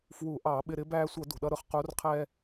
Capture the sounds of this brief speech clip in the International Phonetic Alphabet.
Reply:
f w u˧˩˧ ʔ ɑ˧˩˧ ɓ ɪ˧ ɾ ɪ˨˥ b æː˧ sʷ ʌ˧˩˧ d ṳ˩ ɗ ʌ˧ ɾ ʊ˨˥ χ q u˨˥ r qʰ ɛː˧

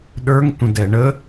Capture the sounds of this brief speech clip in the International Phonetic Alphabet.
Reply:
ɗ ə˞ ŋ tʷ ə̃ d ɛ ɳ ə

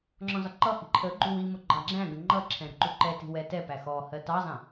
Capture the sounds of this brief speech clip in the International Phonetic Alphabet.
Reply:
ŋ͡ǁ ɔ̃ z ɒ ǃ ʌ h i̤ ǃʰ ə ɡ͡ǃ u w i m ʊ ɡ͡ǃ ɑ ɡ͡ǁ æ̃ ɡ ə̃ ŋ͡ǃ ʌ ǁʰ ɛ̃ ɾ ə̤ ǃ u ǃ ɛ t i̤ w ɛ t ɛ p æ x ɔ h ɜ t ɑ zˤ ɛ̃

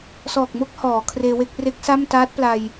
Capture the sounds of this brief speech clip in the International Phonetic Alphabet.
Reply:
s ɔː˨˩ k̚ m o˥˩ k̚ h ɔː˩˦ kʰ r eː˧ w e˥˩ k̚ r e˦˥ k̚ s a˥˩ m t aː˦˥ t̚ p l a˧ j

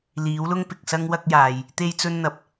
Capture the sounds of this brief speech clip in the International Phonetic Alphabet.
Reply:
l iː˨˥ w l ʊ˥ ŋ p ɪ˨ k̚ s ɐ˥ ŋ w ɐ˥ k̚ j aː˨ j | t̪ e˥ j t͡s ɵ˥ n n̪ ɐ˨ p̚

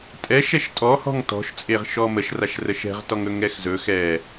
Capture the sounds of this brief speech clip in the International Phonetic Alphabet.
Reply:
tʼ ɛ ʃ ɛ ʃ tʼ ɔ h ɔ̤ ŋ t ɔ̤ ʃ t͡sʼ e ʁ ʃ ɔ m ə ʃ r a ʃ r ə ʃ ɛ̤ ʁ t ɔ ŋ ɵ ŋ ɛ x z ɵ x ɛ

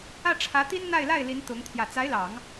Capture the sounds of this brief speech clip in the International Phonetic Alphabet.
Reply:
ä˥˩ ʈ͡ʂʰ ä˧˥ t̪ i˥ n n̪ a˥˧ ɪ̯ l a˥˩ ɪ̯ l i˧˥ n t̪ ʊ˧˥ ŋ t̪ʰ j ä˨˩ t͡s a˧˥ ɪ̯ l ɑ˨˩˦ ŋ

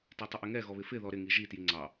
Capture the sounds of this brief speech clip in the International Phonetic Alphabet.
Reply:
t i tˤ ɪ ʔ ɪ ŋ ɛ ɣ ɔ β ɪ f ɪ ð ɔ ɾ ɪ ŋ i ʒ i t j i ŋ͡ǀ ɑ

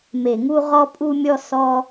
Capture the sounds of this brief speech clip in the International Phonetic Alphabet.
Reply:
m e˧˩˧ ŋ u˥ ʁ ɔ˥ pʼ u˥ mʲ ɔ˥ s ɔ˥

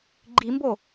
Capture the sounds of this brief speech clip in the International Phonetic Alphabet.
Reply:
ɡ͡ǃ i m b o

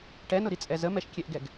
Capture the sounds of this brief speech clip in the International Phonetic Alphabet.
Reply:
ʈ ɛ n ʊ ɾ i t͡sʼ ɛ z ə m ɛ ʃ kʲ ɛ ʔ ɡ ɛ ɡ

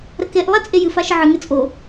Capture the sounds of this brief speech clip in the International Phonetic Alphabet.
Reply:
ɾ ə k e ʔ lˠ ɛ t͡sʼ e j ɨ f a ʃ ə ʕ ɨ ŋ ɘ t͡sʼ o

